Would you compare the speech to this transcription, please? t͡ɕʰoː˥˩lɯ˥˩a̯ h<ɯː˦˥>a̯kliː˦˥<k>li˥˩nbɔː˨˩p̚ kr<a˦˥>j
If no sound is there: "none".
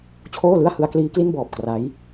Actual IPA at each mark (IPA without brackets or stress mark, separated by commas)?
ɯ˦˥, k, a˦˥